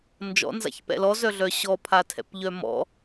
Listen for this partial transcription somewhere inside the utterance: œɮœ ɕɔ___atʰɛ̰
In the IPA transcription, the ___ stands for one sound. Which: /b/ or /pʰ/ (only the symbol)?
pʰ